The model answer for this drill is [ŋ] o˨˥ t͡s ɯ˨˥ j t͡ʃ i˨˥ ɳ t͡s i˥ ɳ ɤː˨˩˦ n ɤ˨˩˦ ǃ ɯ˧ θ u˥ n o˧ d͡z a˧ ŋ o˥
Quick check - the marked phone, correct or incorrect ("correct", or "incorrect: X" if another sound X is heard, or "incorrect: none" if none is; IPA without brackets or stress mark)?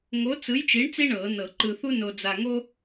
correct